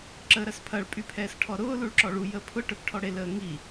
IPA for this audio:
ǁəːɾɐspʰɐɭ pʼypʰɛːsʈʰɔɾʊː luɭǁɔɭu jəːpʰʊ ʈœpʈʰɔɽe ləːŋi

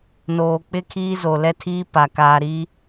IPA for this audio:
noː˨ k͡pɪ˦kʰiː˦ zo˨lɛ˦ tʰiː˦pa˨ kaː˨ɾiː˦

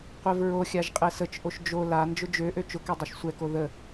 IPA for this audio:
qʷɛvɹoxʲaʒ qʼɛsət͡ʃʔoʃ d͡ʒo la nd͡ʒʊd͡ʒøʔø t͡ʃʊkɛ dˤoʃsʷɛko ðə

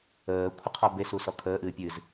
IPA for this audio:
əː kʷʰəqʰɔbe susɔkʰəː ʔɨːpʲɨz

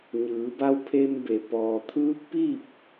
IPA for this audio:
ɲɯː˩˧ba˧˥w pʰe˧mbe˩ pɔː˩t̪ʰɯː˧˥k̚piː˥˨p̚

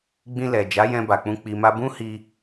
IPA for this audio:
ɡ͡bĩ˧lɛ˨d͡ʒa˨˦jɛ̃˧ ba˨k͡pũ˧ k͡pi˨ma˧bũ˦ hi˧

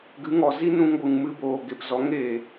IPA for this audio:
ɡɨ˨˦ŋɔ˨zi˦ nũ˧ŋɡʷɨ˨ŋmɨ˧boː˨ ɡe˨pzɔ˨˦ŋ e˨

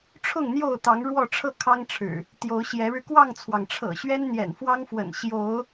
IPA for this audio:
ʈ͡ʂʰʊ˥˨ŋn̪jo˥˨ʊ̯t̪ɑ˨˦ŋ ɻwɔ˥˨ʈ͡ʂʰɤ˥˨ kʰɑ˦ŋʈ͡ʂʰɻ̩˨˩ | t̪jo˨˦ʊ̯ɕjɛ˨˦ɻɻ̩˧ kwɑ˥˨ŋt͡sʰwɑ˩ŋ ʈ͡ʂʰɤ̰˨˩ɕɥɛ˦n n̪jɛ̰˨˩nfwɑ˦ŋfwə̰˨˩n ɕjo˨˦ʊ̯

